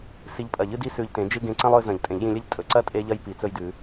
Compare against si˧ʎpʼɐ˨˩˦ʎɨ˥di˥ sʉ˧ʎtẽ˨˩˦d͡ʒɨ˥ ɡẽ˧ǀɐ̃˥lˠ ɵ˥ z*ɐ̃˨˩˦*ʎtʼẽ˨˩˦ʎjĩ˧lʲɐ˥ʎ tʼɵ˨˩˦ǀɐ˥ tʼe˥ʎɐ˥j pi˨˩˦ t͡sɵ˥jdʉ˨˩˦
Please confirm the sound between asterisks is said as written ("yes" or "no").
yes